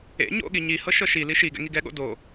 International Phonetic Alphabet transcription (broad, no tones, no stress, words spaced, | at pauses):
ḛ ɲo̰ɠi ɲi hɤʃɤʃi liʃiɡɛ̰ ŋiɡɛɠo̰ do